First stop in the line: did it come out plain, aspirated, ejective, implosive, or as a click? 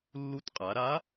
plain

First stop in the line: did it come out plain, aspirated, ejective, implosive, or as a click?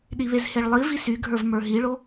implosive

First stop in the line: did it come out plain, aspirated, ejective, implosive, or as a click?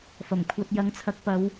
aspirated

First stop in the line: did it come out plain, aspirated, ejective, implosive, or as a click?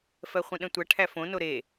implosive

